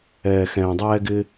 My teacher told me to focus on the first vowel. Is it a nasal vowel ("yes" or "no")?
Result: no